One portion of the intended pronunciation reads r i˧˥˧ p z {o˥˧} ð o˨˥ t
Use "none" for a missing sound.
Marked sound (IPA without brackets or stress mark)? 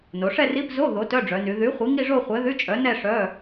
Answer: o˧˥˧